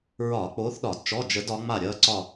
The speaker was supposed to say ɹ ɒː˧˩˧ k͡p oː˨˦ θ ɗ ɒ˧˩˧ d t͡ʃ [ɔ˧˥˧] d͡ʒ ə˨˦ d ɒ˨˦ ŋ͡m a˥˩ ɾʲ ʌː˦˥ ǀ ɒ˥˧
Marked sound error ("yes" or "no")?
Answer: no